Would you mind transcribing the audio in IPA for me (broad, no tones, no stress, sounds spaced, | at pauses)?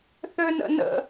θ ø n ə̰ n ə̰